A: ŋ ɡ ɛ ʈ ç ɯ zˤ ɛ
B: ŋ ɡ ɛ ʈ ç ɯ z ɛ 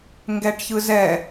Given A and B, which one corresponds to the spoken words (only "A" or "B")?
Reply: B